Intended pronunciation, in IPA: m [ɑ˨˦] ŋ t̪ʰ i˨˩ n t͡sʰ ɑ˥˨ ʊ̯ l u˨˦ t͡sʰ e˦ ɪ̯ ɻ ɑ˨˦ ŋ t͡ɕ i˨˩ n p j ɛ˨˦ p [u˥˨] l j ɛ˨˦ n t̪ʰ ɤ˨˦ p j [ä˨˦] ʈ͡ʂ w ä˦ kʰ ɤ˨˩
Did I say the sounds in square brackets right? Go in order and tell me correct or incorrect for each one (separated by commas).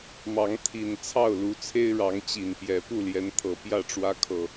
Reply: correct, correct, incorrect